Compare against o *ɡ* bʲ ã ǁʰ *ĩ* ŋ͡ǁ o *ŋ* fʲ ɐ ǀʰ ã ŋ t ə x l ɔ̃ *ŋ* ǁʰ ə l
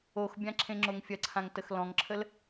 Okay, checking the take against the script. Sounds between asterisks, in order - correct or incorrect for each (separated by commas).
incorrect, incorrect, correct, correct